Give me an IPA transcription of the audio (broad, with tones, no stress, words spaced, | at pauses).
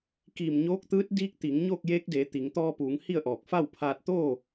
kiː˧˩mɲoː˧˥k̚t̪ɯː˧˥t̚ diː˧˥k̚t̪i˩˧ŋ ɲoː˥˨k̚jeː˧˥k̚deː˩˧ t̪i˩˧ŋ t̪ɔː˧puː˩˧ŋ hi˥˨ə̯ʔɔː˧˩k̚ fa˥˨wpʰaː˧t̚t̪oː˥˨